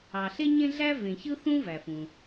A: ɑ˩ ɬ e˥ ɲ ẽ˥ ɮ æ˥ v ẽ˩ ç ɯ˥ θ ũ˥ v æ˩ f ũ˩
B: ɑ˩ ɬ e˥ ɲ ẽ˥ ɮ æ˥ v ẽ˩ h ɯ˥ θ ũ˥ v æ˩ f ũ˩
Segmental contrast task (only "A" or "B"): A